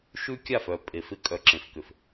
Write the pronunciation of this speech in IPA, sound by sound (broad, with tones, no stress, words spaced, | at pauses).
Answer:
ʃʉ˦kʲa˦˨f œ˨ pʼe˨fɪ˦ kʼœ˨ǁẽ˨fkʏ˨f